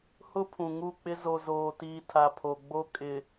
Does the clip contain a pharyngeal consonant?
no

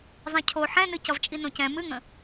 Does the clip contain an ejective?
yes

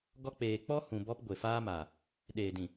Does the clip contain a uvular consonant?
no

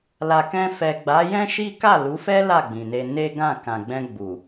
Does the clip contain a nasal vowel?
yes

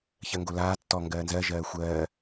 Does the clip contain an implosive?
no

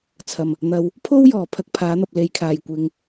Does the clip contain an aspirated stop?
yes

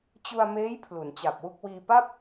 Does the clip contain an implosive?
no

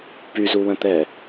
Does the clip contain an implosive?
no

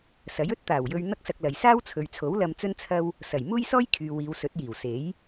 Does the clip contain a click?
no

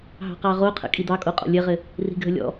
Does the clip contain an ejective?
yes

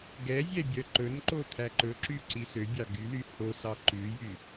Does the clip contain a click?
yes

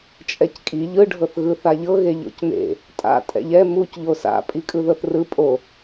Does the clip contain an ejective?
yes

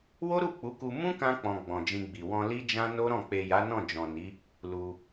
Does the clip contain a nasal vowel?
yes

